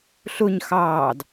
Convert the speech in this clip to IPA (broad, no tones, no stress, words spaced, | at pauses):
ɬʊɲ xɑːd